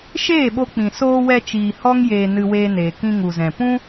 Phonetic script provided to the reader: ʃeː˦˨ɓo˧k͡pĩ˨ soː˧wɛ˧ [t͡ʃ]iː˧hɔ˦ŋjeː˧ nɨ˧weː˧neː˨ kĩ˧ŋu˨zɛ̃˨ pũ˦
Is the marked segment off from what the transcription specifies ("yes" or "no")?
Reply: no